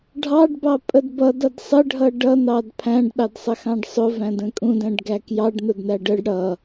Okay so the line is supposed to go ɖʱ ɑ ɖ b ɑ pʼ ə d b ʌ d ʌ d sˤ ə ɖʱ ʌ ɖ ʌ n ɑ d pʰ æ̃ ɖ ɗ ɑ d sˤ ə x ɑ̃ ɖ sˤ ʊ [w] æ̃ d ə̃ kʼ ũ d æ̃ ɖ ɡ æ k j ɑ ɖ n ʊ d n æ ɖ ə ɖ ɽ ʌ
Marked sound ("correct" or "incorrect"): incorrect